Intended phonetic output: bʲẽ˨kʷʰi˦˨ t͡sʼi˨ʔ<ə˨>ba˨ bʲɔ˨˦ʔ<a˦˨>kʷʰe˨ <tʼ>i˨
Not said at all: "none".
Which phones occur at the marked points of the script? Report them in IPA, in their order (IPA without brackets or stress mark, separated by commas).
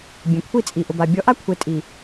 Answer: ʊ˨, a˦, tʼ